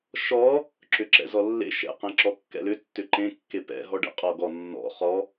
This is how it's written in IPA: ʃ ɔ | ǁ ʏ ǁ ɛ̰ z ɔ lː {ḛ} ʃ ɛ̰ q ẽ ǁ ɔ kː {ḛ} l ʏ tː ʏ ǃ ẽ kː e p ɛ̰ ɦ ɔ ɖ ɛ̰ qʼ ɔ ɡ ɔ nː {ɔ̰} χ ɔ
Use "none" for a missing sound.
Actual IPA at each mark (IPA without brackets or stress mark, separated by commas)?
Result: ḛ, ɛ̰, ɔ̰